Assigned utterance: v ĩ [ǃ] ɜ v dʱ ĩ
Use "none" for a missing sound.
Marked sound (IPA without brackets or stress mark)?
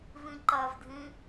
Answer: ǃ